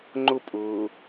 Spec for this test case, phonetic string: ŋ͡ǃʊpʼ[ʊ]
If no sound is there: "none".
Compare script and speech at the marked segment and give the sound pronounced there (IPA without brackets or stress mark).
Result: ʊː